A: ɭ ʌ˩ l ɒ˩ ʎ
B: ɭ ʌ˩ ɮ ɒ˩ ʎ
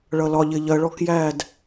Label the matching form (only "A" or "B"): A